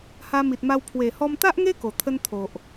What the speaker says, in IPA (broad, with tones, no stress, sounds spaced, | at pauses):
h a˧ m i˨ t̚ m a˧ w pʰ w e˨˩ h ɔ˧ m t̪ a˦ ʔ ŋ e˦ k o˨˩ t̪ʰ ə˦ n t̪ʰ o˨ ʔ